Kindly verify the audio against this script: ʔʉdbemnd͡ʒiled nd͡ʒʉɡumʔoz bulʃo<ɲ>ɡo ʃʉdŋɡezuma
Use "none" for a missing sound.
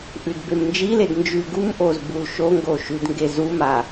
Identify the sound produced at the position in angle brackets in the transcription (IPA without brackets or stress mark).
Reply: ŋ